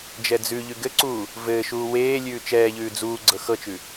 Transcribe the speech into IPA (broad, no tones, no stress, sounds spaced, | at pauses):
d͡ʒ ɛ d͡z ʉ ʎ ʉ ɡ ɘ ǀ uː | v ɘː ʃ uː w eː lʲ ʉː t͡ʃ ɛː ʎ ʉː d͡z uː ɡ͡ǀ ɤ x ɤ t͡ʃ ʉ